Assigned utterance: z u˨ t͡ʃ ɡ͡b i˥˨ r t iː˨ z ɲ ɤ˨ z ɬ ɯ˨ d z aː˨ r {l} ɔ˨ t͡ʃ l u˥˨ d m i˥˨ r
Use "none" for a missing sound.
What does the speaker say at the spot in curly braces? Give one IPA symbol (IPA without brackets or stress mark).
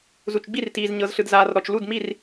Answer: ɾ